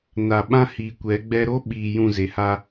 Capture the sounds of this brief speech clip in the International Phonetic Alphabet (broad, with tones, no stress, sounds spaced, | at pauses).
n a˨ ɓ ã˦ h iː˨ kʷ ɛ˨˦ ɡ͡b ɛ˦ ɾ o˦ ɓ iː˨ j ũ˦˨ z e˨ h a˦